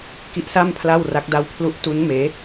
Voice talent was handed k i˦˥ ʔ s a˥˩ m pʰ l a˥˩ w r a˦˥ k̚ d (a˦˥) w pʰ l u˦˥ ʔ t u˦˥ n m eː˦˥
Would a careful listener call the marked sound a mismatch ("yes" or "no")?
no